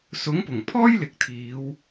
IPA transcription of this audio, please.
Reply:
s ʊ˨˥ ŋ p ʊ˨˩ ŋ pʰ ɔː˥ j l ɪ˨˥ k̚ t̪ʰ iː˨˧ w

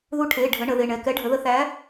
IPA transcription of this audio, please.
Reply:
ð u˨˥ ʈʰ e˩˧˩ ɖʱ ə˩˧ ɳ ə˩˧ ð e˩˧˩ ɳ ɛ˩˧˩ k ɛ˨˥ ɖʱ ə˩˧ ð ə˨˥ θ æ˨˥

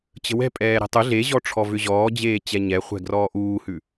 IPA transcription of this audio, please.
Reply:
t͡ɕ ə̤ w ɛ̤ pʼ ɛː ɾ e̤ tˤ ʏ ɮ e ʑ ɔ ʈ͡ʂʰ ɔ v ʏ ʑ ɔː d͡ʑ eː t͡ɕ ɛ ɲ ɛ χʷ ɛ̤ ɡ r ɔː ʔ uː h ʉ

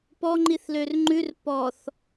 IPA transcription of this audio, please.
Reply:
p ɔ ŋ͡ǃ i θ l ø r ŋ͡ǃ ʉ r p ɔ θ

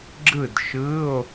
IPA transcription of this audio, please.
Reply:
ɡ͡ǁ ɯ˥˨ d ʃ ɯ˧˥˧ o̯

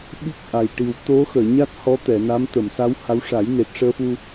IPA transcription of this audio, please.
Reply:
ɓ i˦˥ k̚ ʔ a˨˩ j ʈ i˨˩ w t̪ o˧˥ x əː˨˩˨ ɲ a˦˥ t̚ h ɔ˧˥ t̪ ɛ˨˩˨ n a˧˥ m t̪ ə˨˩˨ m s a˧˥ w h a˧˥ w ʂ a˨˩˦ j n e˨˩ t̚ ʂ əː˧ f u˧

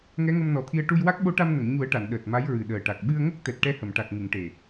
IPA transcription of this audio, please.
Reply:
ŋ ɛ˧˥ ŋ ə˧ m n ɔ˨˩ t̪ʰ i˧ ə̯ ʈ u˧ j w a˦˥ k̚ ɓ o˧˥ ʈ a˧ m n ə˨˩˨ ŋ ɲ u˨˩˦ ə̯ ʈ a˨˩˨ n ɗ əː˨˩ t̚ m a˧˥ j ɹ ɨ˨˩ ɗ əː˨˩ ʈ a˨˩ k̚ ɓ ɨ˧ ə̯ ŋ ə˦˥ k̚ t̪ ɛ˨˩ t̚ ʈ ɛ˧ h ə˨˩˨ m ʈ a˨˩ k̚ ŋ ɨ˨˩˨ ŋ ʈ e˨˩

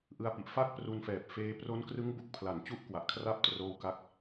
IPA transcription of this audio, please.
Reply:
ʔ ɯ˧ a̯ p i˨˩ ʔ f a˥˩ k̚ p r u˧ n f ɛː˨˩ p̚ f eː˧ p r o˦˥ n k r ɯ˦˥ ŋ b u˨˩ k̚ pʰ l a˩˦ n t͡ɕ u˦˥ ʔ k w a˨˩ ʔ kʰ r a˥˩ p̚ t r oː˦˥ w k a˦˥ k̚

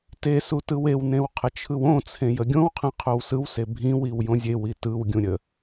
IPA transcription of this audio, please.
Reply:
t e s u t ɯ w e w n ẽ w qʰ ə t͡ʃʰ ɯ w õ t͡sʰ ẽ j ə ɡʲ õ w qʰ ɛ̃ qʰ o w s ɯ w s e bʱ ĩ w i w j õ zʲ e w i t ɯ w ɡʲ ũ ɾʲ ə

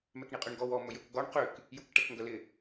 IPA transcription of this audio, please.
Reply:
m ɛ k ɳ i qʼ ʏ ɳ ɡ ɔ w ɔ m ɵ j ɵ k ɡ ɔ ɳ q ʏ k | j u k ʈ ɛ k ŋ ɡ œ l ɪ

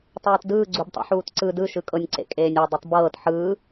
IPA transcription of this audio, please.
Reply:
tˤ ɤː t d ɯː ɡ͡ǀ u b tˤ ṵ ħ uː t ǀ ɯ d ɯ ʃ ɯ kʼ ɤ nʲ ǀ ḛ kʼ eː nʲ ɤ dˤ i tˤ b ɤː t ħ ɯː

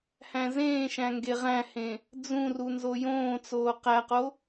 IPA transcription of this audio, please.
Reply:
h æ̃ z ẽː ʃ æ̃ ŋ ɡ e ʁ æ̃ h ẽ | d͡z ũ r u n z o j õː t͡s oː q æ q o

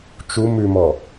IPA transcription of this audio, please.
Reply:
t͡ʃ u m ʉ m ɔ

